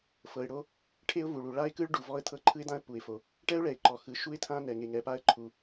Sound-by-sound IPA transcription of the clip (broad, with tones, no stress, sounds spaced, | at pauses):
f ɤ˩ ɪ̯ ɽ o˥ | ʈʰ e˥ ʊ̯ v u˩ ɭ u˩ ɭ a˥ ɪ̯ k ɯ˥ ɭ ɖ u˩ v ɔ˥ ə̯ t̪ʰ ɤ˥ ǃʰ ɯ˥ ɪ̯ d̪ ã˥ ə̯ p u˩ ɪ̯ f o˩ | ʈ ɛ˥ ʊ̯ ɭ ɛ˩ ɪ̯ ǃ ɔ˩ x ɯ˩ ʃ u˥ ɪ̯ t̪ʰ ã˥ n ɛ˩ ŋ e˩ ŋ ɛ˩ p a˥ ə̯ ǃʰ u˩